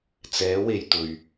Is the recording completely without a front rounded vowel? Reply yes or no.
yes